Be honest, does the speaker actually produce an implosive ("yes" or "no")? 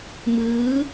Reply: no